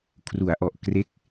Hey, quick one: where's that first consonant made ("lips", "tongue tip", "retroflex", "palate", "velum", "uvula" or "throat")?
velum